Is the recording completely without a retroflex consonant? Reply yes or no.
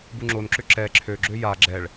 no